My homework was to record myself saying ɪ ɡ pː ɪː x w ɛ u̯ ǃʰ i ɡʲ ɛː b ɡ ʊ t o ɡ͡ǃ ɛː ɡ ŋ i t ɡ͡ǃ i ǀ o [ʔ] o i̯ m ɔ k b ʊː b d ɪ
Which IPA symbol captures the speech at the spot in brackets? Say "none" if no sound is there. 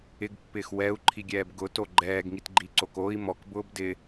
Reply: k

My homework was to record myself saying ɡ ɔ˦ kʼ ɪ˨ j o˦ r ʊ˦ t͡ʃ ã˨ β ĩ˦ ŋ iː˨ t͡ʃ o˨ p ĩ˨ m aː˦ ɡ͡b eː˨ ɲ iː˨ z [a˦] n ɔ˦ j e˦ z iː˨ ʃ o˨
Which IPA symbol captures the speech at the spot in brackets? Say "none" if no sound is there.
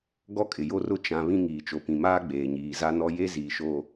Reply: a˦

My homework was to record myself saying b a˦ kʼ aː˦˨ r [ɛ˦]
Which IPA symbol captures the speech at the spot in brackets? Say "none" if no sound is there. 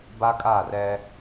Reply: ɛ˦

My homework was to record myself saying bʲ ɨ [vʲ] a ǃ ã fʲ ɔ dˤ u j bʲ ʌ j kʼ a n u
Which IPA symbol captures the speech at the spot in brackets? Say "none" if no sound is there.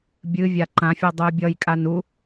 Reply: vʲ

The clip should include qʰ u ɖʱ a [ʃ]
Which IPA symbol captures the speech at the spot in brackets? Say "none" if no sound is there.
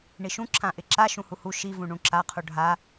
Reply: none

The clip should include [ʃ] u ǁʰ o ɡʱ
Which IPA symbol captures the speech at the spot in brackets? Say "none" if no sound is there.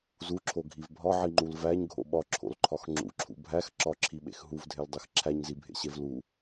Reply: z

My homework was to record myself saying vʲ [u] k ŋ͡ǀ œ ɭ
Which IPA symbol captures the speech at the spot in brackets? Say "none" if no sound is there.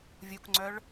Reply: u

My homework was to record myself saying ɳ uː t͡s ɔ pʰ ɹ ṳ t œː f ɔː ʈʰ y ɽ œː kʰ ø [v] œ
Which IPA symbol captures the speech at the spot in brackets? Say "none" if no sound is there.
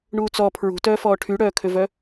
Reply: v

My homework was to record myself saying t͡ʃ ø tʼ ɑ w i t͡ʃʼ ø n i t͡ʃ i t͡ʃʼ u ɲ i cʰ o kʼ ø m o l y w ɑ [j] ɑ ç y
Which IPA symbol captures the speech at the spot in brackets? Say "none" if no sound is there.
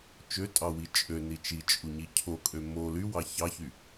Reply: ç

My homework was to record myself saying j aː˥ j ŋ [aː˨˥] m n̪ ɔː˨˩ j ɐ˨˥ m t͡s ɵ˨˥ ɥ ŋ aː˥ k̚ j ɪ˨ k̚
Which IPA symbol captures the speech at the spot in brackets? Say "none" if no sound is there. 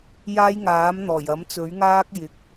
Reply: aː˨˥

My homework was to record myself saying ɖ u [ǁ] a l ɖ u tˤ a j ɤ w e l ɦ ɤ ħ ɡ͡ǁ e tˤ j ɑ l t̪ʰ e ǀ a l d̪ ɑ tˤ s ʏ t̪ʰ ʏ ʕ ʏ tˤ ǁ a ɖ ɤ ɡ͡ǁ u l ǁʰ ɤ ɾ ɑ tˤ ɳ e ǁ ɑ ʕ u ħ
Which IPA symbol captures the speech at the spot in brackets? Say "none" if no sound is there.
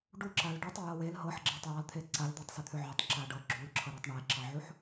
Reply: ǁ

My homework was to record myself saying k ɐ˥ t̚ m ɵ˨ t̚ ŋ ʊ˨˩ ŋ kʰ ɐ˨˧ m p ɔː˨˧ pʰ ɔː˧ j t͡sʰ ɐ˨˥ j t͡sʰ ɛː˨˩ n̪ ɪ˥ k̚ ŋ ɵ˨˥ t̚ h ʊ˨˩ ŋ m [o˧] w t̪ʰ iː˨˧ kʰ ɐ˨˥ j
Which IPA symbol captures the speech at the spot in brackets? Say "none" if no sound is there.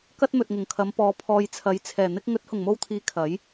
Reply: o˧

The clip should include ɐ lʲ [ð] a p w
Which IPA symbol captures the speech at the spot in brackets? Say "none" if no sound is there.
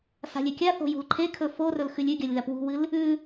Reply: ð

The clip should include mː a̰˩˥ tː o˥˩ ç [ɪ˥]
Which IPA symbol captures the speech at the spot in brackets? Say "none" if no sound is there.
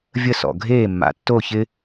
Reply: ɪ˥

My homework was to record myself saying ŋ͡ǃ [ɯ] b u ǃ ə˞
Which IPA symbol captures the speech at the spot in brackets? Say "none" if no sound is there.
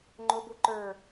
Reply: ʊ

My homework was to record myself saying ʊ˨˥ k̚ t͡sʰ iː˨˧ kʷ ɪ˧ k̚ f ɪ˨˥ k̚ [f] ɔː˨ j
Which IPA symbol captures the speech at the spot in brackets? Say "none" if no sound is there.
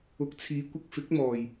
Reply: m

